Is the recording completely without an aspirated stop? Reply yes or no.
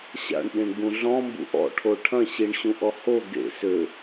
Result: no